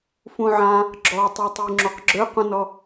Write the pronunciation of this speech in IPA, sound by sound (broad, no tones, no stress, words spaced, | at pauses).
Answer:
fũʕã | ɡ͡ǁɔtˤotˤy ŋ͡ǁoqɡ͡ǁøqũnɔ